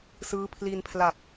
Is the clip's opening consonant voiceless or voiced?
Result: voiceless